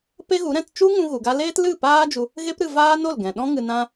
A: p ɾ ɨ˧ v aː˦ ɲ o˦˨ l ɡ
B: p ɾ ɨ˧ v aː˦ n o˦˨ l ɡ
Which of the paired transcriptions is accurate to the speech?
B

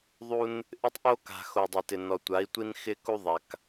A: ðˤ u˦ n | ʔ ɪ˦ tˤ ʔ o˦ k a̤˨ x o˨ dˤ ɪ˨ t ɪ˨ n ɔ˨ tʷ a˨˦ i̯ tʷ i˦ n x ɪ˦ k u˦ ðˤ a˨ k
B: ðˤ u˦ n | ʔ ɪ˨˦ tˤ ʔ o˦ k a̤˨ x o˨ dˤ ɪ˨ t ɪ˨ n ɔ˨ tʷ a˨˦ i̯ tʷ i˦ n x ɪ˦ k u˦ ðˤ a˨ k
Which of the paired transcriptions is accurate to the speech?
A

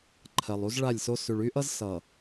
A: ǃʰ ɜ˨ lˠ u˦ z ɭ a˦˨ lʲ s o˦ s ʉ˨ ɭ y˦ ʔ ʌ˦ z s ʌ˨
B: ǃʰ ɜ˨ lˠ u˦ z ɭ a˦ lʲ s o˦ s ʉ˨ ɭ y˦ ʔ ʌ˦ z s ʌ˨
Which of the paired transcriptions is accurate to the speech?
A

